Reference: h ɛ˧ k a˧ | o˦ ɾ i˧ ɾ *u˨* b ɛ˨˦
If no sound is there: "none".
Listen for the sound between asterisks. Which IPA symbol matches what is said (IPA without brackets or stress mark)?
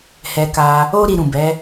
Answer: ũ˨